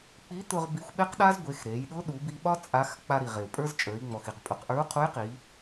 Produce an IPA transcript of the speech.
k͡pi˧˥t̪ʊ˧ʁ bi˧xʷɓe˥qɗa˥z ɡʷe˩˧x ɾe˩˧jɗʊ˧˥ ɗu˩˧bi˧ɓɒ˥ t͡sʼa˧˥x k͡pa˧ɾi˩ʁe˩u̯ pʼə˞˥zt͡ʃʼə˞˩˧i̯ŋ͡mɔ˩xi˩q pʼʊ˩˧qʔə˞˧˥u̯qʰu˧˥jqi˩˧

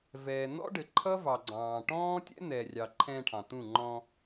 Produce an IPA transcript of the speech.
vɛː˨n̪ɔ̰˦ɖɘ˨ǃʰʌ˦ vɑ˨ɡ͡ǀɑ̃ː˨ʈɔ̃ː˦tʲɛ̰˦ n̪ɛ˨rʲɑ˨ ǃʰɛ̃˧ʈʰɑ̃˨t̪ũ˦˨ ŋ͡ǃɔ̃˧

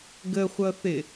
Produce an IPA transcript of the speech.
ɡəχʷʌθɪ

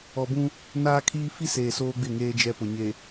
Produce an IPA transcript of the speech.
ɔ˨bũ˦ | naː˦kʰiː˦ fi˦seː˨ soː˦ɡ͡bɪ˦˨ŋeː˦ d͡ʒɛ˦pʊ˨ ɲe˨

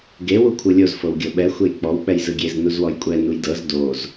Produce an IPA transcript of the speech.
ɡe wukʷʰɯlʲoz fɤwɡʲɤɓɛ xʷejk͡pɔw k͡pɛjzɯɡʲez nuzwɔjkʷʼɛ nujdɤz doz

